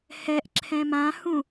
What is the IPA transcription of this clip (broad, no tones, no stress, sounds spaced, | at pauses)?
h ɛ ʔ ǁʰ ɛ̃ m ã h ũ